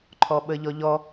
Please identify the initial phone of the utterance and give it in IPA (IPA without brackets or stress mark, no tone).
ǃʰ